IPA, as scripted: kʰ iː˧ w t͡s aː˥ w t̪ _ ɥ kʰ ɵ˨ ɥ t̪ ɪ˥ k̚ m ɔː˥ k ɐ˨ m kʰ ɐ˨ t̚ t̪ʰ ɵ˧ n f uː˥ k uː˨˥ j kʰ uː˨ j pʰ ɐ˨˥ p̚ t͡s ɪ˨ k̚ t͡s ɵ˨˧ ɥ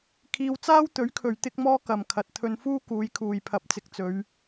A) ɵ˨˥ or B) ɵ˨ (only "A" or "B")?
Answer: A